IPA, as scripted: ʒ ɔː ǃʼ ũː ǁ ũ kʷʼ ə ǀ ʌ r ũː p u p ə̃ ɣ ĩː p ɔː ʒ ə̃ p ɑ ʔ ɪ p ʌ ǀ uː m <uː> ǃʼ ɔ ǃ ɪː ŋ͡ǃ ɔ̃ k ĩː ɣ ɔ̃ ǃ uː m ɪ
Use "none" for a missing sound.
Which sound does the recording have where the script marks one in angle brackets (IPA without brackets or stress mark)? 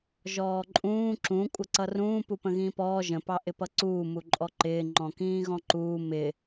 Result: u